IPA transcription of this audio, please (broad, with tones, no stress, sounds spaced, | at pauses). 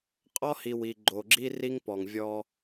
qʼ ɔ˦ h i˨ w i˨ ɡ͡ǃ o˨ ɡ͡ǁ i˦ r i˦ ŋ p ɔ˨ ŋ vʲ ɔ˦